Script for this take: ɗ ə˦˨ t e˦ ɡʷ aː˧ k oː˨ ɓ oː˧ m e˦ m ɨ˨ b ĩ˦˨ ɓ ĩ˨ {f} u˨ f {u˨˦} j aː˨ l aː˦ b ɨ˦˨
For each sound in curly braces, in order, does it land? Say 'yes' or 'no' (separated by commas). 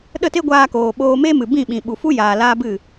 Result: no, no